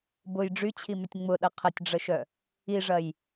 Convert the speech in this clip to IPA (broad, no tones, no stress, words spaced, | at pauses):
bʊj ɖ͡ʐyt͡ɕʰimʏtʲ ŋ͡mʊɗɐ qʰətʲɖ͡ʐəʃœ | iʐɐj